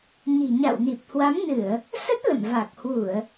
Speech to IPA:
ɲi̤˨˩ɲa̰˧˨wni˨˩p̚ hwa˨˦mnɨ˧˩˨ə̯ | sə˦˥t̚ lə̰˧˨mva˨˩k̚hwu˧˩˨ə̯

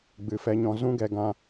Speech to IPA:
ɡ͡bɨ˨fɛ˧ɲɔ̃˧ zũ˦ɡɛ˧ ɡã˧

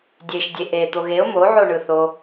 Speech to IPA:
dʲeʃdʲe ʔe t̪oɣeʊ̯ mo ʕoɳɯθo

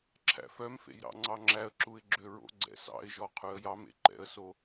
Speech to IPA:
ǁʰæ̰fœmfḛj ɾɑ̰ŋ͡ǀɑŋ͡ǁæə̯ǁuɪ̯ ɡ͡ǁøɹo̰ɡ͡ǀɛ̰ sɑ̰ɪ̯ʒɔ qʰʉə̯jɑmḛ ǃɛ̰ə̯so

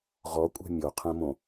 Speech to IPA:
ʁɔkʷʼɛ̤ mʲoqʰɛ̃mõ

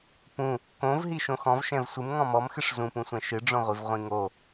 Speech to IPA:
pũ | kõvɦi ʃõxɔ̃vʃɛ̃v sʷɨm ŋɔ̃mɔmxɨʂ zũpũsʷɛ̃ ʃɨɖ͡ʐõʁʷiv ʁʷĩŋo

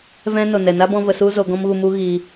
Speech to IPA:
vɛ̃˦no˨ nɛ˨na˦bɔ̃˧ və˧su˦ zo˧ɡɔ̃˦mɣu˧mu˦ ɣiː˧

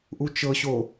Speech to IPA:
ʔut͡ʃɤɕo

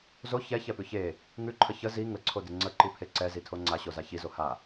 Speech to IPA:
zo çɛçɛpʉ çe | ŋʉǃʰə çə zi ŋəǀʰodɪ ŋ͡ǀəǃipʰe ǀɛzitʰo ŋ͡ǀaɕoza çizo ha

